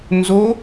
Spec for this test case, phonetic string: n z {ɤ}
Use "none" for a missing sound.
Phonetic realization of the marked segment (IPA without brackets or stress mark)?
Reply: o